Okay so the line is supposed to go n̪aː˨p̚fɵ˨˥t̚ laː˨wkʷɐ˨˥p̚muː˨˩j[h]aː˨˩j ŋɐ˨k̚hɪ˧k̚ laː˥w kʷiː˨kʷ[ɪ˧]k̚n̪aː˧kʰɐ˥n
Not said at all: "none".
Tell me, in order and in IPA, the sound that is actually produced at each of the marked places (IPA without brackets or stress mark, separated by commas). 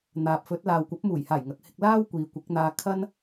h, ɪ˨˥